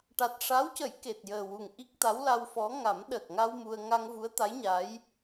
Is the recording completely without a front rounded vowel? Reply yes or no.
yes